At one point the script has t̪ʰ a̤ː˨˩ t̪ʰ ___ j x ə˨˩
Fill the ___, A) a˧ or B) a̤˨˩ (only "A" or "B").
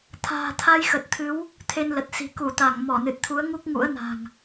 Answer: A